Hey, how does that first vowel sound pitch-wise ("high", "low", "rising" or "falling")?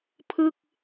falling